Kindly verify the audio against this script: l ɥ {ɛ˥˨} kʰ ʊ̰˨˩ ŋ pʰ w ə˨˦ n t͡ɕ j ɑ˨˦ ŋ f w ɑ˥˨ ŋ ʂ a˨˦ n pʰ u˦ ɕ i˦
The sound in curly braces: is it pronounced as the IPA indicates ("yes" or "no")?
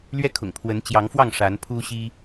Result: no